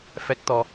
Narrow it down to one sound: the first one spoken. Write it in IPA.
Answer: f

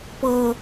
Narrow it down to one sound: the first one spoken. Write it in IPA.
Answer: p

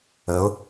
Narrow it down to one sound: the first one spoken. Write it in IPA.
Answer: ə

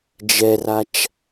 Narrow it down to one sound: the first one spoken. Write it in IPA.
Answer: d͡ʒ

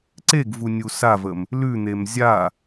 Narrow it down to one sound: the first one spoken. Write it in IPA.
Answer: ǀ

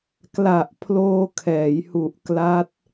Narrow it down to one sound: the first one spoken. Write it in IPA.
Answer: k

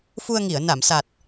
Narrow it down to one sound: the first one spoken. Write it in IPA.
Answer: f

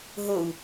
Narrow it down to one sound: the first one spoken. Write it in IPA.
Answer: ɦ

